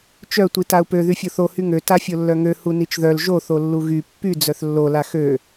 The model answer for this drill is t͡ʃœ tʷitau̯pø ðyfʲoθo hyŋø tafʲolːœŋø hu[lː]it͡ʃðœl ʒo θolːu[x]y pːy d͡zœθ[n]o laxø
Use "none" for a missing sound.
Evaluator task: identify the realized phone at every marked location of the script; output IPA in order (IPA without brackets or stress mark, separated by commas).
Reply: n, ɣ, lː